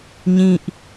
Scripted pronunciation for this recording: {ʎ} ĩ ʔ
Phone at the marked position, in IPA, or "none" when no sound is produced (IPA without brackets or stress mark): ɲ